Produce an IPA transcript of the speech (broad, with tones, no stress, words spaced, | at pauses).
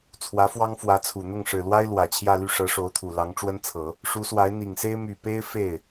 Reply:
t͡sʰwä˧˥fwɑ˥ŋfwä˧˥t͡sʰu˨˩ n̪ʊ˥˩ŋʂɻ̩˨˩lwa˥ɪ̯ lwä˨˩t͡ɕʰjä˥˧ly˥˩ʂɤ˧˥ ʂo˧˥ʊ̯t̪ʰu˨˩ lɑ˧˥ŋʈ͡ʂwə˥nt͡sʰɤ˨˩˦ | ʂu˧˥swa˧˥ɪ̯n̪i˨˩ŋse˥ɪ̯ my˨˩pe˥ɪ̯ fe˥˩ɪ̯